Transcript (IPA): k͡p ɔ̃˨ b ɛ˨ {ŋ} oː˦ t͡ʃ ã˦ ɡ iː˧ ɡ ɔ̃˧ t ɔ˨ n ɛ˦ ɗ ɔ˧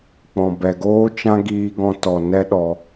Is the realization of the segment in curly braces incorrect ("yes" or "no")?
yes